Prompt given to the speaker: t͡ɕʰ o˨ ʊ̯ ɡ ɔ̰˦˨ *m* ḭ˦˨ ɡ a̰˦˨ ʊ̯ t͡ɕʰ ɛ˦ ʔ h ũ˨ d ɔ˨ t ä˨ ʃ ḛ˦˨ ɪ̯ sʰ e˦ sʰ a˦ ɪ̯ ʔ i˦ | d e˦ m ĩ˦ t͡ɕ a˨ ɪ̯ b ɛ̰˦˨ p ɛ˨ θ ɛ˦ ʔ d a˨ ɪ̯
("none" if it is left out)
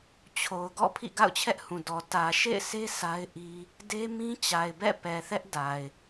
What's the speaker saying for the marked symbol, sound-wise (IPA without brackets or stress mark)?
pʰ